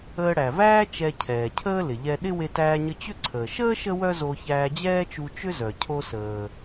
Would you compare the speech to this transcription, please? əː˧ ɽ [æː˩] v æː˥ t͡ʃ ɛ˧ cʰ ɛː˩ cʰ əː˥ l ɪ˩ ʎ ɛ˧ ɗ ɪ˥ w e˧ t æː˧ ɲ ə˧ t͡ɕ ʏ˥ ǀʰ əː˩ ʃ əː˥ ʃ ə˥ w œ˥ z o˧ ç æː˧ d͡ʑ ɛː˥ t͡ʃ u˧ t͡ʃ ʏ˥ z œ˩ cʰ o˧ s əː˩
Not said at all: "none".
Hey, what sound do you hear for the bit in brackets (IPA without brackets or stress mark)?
æ˩